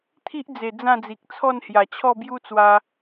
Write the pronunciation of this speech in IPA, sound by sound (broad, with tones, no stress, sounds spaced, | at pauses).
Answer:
t̪ʰ i˦ ʔ d͡z e˨˩ d͡z ã˥˧ d͡z i˨ k̚ t͡sʰ ɔ˥˧ n h j a˨˩ t͡ɕʰ ɔ˥˧ b j u˦ t͡s w a˧